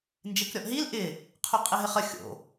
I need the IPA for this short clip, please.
n d͡ʒ e k ɾʲ ɔ ʔ ɦ i l ʔ ɪ | qʰ o qʼ ɪ ɦ ɪ χ ə xʲ o̰

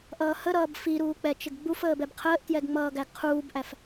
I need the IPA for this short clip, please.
ʔ ʌː h ə ɾ ʌː b f i ɾ uː k͡p ɛ t͡ʃ ɪ ɡ ɡ͡b u f əː b ɛ b qʰ əː ʔ t j ɛ ɡ ŋ͡m ʌː ɡ æ ɡ qʰ uː b ʔ æ f

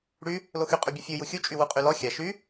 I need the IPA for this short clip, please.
ɽ y | l o x y qʼ y bʲ ʉ fʲ u j u xʲ u t͡ʃʼ y w u qʼ y l ɔ xʲ a ʃ y

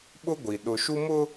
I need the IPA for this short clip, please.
ɓ ʊ˦ ɡʷ i˨ ɗ ʊ˨ ʃ u˦ m ʊ˦

